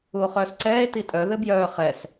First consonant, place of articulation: uvular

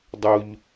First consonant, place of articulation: alveolar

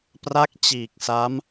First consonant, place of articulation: labial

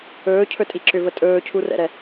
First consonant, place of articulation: palatal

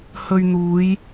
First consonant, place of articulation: glottal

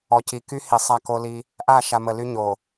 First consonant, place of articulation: palatal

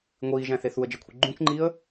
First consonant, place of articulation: velar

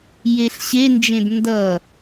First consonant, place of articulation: palatal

